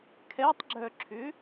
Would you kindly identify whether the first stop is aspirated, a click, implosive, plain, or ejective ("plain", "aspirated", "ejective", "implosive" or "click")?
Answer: aspirated